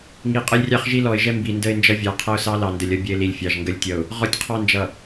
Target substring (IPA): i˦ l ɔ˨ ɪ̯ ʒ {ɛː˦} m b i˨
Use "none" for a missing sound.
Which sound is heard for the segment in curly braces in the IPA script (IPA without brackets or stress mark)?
ɛ˦